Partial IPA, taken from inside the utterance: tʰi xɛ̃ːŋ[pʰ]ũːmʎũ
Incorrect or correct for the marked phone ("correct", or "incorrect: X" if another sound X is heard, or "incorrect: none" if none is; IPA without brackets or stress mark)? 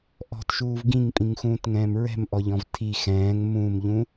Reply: incorrect: m